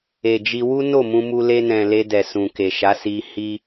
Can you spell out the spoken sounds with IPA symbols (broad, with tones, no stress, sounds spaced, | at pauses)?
e˨ d͡ʒ i˧ w u˦ n o˦˨ m ũ˧ m u˧ l e˧ n ɛ̃˨ l e˧ d ɛ˨ s ũ˨ k e˨ ʃ a˨˦ s i˧ h i˦